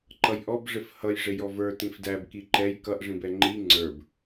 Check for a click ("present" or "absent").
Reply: present